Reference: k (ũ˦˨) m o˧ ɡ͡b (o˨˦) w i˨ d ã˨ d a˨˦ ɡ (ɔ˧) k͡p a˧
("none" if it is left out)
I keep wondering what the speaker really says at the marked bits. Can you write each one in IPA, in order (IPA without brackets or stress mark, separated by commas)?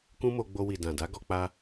ũ˦, o˧, ɔ˧